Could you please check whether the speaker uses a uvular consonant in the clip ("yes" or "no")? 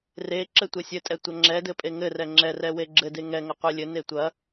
yes